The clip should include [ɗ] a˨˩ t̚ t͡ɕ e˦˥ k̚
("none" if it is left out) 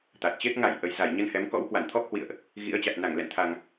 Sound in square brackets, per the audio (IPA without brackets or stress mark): t̪